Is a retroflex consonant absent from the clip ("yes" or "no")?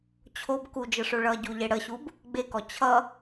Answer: no